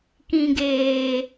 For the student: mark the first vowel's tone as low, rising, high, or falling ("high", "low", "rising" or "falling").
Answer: low